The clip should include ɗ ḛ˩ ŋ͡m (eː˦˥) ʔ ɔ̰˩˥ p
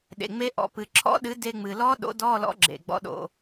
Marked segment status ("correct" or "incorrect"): incorrect